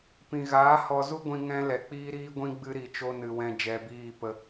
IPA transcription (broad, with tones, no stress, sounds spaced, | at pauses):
p ĩ˨ ɣ aː˨˦ h ɔ˨ z u˧ ɡʷ ĩ˨ ŋ ɛ̃˦ l ɛ˨ k͡p iː˦ ɾ iː˦ ɡʷ ĩ˦ ɡ͡b ɨ˦ ɾ i˨ t͡ʃ o˦ n ɨ˨ w ɛ̃˧ d͡ʒ ɛ˧ b iː˦˨ p ə˧